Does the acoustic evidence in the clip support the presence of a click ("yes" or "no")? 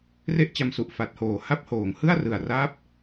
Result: no